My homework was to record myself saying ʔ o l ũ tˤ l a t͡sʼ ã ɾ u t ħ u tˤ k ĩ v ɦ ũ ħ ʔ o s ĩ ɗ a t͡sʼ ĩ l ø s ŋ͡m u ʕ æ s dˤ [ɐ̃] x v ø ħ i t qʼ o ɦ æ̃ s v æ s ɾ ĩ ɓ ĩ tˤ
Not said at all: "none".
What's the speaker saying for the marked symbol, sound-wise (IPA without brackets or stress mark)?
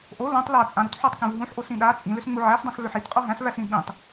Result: ã